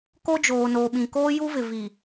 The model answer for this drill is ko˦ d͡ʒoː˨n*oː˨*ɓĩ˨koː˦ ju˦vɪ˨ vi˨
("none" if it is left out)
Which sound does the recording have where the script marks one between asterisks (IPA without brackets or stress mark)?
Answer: oː˨